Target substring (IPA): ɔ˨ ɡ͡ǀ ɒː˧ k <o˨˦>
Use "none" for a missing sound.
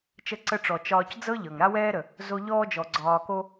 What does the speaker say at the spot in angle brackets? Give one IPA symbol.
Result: o˦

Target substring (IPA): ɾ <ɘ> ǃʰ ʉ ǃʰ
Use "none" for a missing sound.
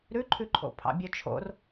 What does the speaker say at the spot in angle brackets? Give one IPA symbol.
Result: ʉ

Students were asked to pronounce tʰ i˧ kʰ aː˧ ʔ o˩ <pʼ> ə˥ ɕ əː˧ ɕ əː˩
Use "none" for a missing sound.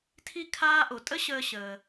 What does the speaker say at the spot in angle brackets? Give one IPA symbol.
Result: tʼ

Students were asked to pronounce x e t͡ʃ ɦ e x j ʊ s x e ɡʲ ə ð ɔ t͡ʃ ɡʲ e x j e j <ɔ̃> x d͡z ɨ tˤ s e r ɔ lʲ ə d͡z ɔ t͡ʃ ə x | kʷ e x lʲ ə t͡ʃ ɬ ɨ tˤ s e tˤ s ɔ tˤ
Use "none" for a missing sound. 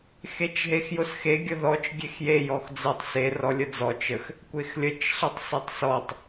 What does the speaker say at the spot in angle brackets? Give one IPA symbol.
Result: ɔ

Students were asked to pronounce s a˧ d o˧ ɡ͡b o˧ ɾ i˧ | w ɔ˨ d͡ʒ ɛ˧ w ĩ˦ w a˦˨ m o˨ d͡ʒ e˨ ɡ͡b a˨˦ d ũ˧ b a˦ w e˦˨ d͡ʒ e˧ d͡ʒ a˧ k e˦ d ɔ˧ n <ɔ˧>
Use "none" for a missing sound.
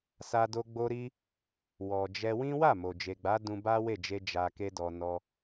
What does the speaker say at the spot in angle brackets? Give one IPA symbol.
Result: ɔ˧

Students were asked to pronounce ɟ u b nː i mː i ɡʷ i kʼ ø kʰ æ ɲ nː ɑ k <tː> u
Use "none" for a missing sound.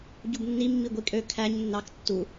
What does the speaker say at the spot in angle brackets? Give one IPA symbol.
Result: tː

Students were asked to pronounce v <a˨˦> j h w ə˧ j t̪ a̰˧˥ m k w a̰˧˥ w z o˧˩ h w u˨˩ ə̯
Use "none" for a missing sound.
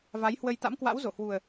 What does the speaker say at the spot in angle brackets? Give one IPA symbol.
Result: a˨˦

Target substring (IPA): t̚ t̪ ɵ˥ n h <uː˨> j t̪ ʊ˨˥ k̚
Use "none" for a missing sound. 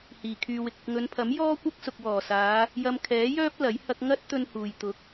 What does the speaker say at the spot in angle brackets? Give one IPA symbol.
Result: uː˨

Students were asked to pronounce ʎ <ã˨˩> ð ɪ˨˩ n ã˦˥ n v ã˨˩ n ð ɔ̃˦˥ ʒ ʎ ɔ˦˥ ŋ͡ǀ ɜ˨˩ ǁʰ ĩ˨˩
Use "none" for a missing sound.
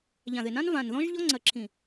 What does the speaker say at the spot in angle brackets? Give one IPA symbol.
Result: ã˨˩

